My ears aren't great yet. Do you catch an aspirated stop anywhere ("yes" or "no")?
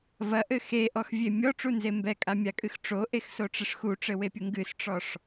no